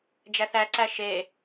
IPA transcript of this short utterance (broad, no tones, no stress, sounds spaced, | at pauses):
d͡ʒ æ θ æ ǀ æ ʃ e